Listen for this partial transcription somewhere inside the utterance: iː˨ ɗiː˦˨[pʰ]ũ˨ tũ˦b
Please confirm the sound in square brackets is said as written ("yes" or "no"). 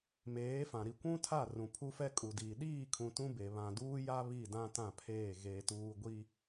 no